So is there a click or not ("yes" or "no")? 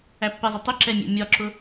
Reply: yes